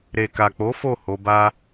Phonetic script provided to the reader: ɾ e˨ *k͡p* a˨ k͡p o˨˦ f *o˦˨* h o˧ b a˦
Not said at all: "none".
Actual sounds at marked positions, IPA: k, o˦˨

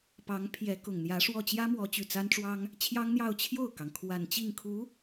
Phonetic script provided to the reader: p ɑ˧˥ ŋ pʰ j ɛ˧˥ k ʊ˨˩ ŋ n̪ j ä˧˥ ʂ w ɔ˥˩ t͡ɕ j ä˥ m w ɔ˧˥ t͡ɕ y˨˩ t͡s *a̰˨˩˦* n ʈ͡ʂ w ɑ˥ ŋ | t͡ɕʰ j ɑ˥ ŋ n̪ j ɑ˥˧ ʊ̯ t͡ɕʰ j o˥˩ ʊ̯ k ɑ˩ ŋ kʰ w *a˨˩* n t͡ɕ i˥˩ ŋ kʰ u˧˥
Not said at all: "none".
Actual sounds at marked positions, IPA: a˥, a˨˩

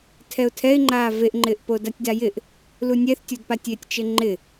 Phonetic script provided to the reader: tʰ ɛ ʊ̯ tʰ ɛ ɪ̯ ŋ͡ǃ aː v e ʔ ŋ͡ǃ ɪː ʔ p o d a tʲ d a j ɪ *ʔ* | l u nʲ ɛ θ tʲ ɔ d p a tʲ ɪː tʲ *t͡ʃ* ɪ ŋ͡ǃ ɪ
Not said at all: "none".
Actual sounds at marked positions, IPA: ʔ, t͡ʃ

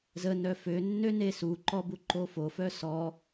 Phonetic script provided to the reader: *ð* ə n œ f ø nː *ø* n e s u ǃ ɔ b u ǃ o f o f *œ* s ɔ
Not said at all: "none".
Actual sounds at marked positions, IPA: z, ø, œ

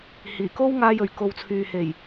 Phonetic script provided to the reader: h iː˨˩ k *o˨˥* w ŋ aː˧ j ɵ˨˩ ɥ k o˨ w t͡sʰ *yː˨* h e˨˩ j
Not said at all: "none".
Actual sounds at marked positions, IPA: o˥, yː˨

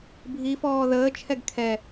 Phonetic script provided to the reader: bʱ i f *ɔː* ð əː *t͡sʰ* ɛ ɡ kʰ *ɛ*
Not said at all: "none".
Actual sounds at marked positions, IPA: ɔː, t͡ʃʰ, ɛ

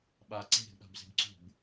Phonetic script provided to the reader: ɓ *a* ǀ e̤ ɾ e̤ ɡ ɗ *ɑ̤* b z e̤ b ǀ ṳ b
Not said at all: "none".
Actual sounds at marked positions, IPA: a, a̤

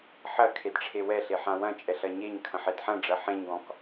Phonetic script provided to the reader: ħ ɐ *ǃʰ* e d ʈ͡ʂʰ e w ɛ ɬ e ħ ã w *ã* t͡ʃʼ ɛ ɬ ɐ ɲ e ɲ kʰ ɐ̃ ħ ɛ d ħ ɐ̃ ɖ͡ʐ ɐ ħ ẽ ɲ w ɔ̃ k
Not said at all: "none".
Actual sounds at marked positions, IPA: kʰ, ɐ̃

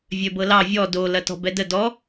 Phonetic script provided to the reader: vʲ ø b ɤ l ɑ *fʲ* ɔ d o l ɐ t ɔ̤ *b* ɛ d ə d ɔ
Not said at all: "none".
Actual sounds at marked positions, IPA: vʲ, b

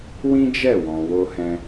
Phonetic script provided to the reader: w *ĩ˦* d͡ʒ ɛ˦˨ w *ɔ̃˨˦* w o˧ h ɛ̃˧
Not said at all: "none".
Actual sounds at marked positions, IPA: ĩ˦, ɔ̃˨

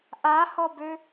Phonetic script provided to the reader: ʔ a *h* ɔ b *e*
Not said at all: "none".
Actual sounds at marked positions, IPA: h, ø

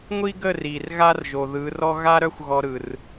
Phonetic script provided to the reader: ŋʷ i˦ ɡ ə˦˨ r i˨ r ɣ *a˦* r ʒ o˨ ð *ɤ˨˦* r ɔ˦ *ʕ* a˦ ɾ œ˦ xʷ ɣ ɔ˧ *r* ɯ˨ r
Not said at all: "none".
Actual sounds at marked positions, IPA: a˦, ɯ˨˦, ɣ, ɾ

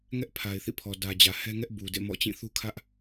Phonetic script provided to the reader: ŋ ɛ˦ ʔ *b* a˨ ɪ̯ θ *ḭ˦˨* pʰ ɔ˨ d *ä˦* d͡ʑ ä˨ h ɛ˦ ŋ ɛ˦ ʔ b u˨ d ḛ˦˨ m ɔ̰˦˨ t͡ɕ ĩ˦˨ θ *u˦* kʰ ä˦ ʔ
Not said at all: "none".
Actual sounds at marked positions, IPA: pʰ, ḭ˦˨, ä˨, u˦

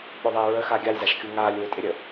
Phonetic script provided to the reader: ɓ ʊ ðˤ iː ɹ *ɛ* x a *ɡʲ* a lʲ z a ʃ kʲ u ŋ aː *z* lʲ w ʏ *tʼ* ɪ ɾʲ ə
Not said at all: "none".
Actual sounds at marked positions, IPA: ə, ɡʲ, none, tʼ

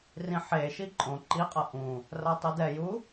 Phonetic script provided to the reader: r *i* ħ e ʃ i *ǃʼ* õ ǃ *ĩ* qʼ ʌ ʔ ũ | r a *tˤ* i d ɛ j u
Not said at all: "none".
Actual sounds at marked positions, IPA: ĩ, ǃʼ, i, tˤ

